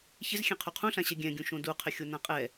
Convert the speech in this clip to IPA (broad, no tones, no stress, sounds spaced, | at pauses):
ç ɪ z xʲ ɛ̃ qʰ u qʰ ũ ɬ ã ɕ ɛ ɡʲ ɛ̃ ɡʲ ũ ʃ õ d u qʰ ɪ xʲ o n ã qʼ ɛ